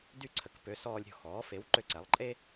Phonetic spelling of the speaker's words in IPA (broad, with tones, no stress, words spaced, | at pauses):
dy˥˩ǀʰə˩˥k pø˩˥sɔː˧lʲɾʲo̤˥˩xɔː˩˥ fe˩˥wǃø˧ǀɛ˩˥lˠ ǃʼe˥